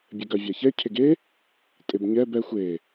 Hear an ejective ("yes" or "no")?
yes